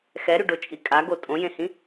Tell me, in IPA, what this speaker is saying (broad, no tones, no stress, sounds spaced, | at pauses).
x ɛ ɾ y ɖ o t͡ʃʼ i kʼ a ɡ o tʼ õ j ẽ h ĩ